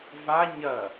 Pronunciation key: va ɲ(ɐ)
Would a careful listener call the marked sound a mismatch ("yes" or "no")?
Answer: no